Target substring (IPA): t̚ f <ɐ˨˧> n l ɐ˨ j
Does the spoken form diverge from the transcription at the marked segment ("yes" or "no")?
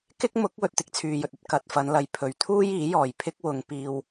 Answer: no